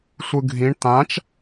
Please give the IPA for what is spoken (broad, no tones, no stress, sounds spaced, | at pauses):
sʷ ɯ ɡʱ ĩ ɳ t̪ ã t͡ʃ